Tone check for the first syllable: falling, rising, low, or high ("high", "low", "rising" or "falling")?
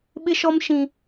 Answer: high